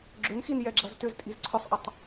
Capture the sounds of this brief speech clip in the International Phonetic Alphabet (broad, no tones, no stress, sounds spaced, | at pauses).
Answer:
ɡ͡ǁ ʏ n x i n j ɛ ɡ͡ǁ ɐ z t ʏ z tʼ i z ǀʰ ʏ sˤ ʔ ɐ tˤ